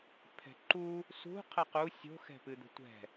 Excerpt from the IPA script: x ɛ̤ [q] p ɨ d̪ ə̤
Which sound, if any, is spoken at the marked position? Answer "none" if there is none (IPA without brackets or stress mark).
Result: none